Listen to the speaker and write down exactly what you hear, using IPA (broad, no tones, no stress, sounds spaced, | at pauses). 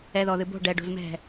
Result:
ɛ ð ɔ ð ɨ b o̤ ɖ ɛ ɖ o̤ z m ɛ̤